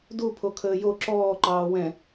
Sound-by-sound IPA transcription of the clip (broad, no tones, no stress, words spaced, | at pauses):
du pʰokʰəːjo ǁɔːǃɑː wɛ̃